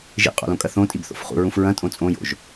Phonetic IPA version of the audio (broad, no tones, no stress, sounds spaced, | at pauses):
ʒ ḭ qʼ o̰ l õ kʼ ɐ θ õ tʼ i b θ o̰ f χ ṵ ɹ ũ f ɹ ɐ̃ tʼ õ t͡sʼ õ j o̰ ʒ